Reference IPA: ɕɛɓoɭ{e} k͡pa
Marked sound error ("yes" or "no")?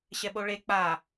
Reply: no